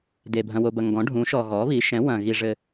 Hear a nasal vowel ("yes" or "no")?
yes